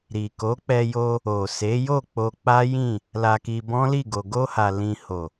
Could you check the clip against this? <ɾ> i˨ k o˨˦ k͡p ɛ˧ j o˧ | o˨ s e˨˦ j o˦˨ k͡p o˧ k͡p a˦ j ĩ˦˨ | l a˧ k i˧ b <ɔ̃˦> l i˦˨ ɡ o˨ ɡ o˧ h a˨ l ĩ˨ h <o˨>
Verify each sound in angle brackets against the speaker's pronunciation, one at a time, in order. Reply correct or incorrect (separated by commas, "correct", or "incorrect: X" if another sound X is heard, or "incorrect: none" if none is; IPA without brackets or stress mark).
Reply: correct, correct, correct